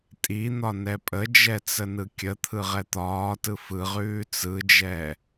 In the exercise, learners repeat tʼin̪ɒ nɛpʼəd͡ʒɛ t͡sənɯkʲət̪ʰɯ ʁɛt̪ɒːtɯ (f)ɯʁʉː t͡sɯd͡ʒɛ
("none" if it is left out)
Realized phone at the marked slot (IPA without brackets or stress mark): f